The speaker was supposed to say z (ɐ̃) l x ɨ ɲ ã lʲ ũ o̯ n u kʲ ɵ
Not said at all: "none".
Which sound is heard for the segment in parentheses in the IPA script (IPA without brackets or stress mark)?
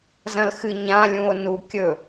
ɐ̃